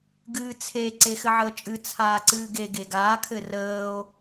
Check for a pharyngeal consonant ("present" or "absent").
present